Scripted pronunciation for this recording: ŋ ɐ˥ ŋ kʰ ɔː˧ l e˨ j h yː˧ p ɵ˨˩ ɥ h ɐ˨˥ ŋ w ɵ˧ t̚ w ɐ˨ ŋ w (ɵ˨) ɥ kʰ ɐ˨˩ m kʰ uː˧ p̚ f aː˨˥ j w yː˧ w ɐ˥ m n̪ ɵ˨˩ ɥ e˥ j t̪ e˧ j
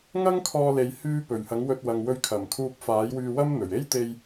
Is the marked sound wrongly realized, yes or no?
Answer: yes